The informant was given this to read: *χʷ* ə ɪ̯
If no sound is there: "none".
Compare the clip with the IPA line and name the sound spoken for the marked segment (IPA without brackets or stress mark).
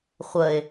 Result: χʷ